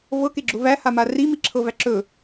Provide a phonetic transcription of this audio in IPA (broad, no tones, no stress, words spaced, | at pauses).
vɤkeɡ͡ǁʊ væhama rimiǁʰɤvæ ǁɵ